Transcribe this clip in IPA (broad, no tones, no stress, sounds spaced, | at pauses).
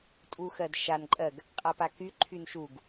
tʼ u x ɜ d ʃ a n ǃʼ ɜ ɡ | qʼ a p a k y ǃʰ y n ʃ u ɡ